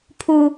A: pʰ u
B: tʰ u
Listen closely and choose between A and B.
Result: A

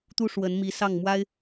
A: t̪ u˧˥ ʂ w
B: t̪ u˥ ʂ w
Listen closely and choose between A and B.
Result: B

